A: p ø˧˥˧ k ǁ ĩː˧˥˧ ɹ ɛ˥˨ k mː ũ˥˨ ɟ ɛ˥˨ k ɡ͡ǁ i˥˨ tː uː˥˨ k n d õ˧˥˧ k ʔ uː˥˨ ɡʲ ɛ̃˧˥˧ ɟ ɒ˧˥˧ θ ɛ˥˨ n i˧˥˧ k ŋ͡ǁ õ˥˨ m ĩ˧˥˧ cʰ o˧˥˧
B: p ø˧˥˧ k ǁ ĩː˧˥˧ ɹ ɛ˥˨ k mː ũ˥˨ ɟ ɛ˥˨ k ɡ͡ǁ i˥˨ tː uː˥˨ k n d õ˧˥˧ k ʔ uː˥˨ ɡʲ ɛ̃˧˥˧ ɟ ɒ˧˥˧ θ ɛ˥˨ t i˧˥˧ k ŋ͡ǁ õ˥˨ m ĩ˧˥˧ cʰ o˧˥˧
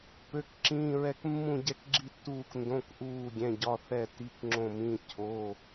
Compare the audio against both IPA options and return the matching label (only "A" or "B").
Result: B